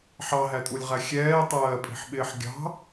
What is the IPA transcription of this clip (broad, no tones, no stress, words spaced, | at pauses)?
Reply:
ħɑɦætʼulʲʁæ xʲɛːtˤɜːpʼi̤ħɓɪːħ ɡʲɑ̤